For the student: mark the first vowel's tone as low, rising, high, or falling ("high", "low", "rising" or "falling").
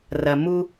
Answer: low